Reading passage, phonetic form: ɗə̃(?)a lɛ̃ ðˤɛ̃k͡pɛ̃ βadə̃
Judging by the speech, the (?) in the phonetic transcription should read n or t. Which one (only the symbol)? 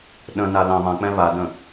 n